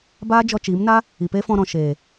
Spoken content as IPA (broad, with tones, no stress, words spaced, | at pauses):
baː˦d͡ʒɔ˧t͡ʃiː˨˦mna˦ | i˨pe˦fɔ̃˧ɾɔ̃˨ ʃeː˨